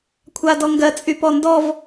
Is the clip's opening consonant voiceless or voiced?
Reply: voiceless